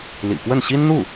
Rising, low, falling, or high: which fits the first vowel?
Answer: low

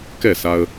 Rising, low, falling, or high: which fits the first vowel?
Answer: falling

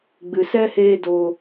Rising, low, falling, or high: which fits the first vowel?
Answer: low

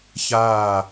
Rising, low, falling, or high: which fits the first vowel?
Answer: falling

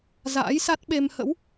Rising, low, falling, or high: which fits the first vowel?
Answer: rising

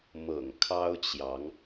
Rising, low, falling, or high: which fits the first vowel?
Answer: low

